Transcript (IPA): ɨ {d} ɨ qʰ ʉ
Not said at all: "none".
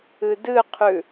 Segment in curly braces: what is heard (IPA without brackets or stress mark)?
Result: d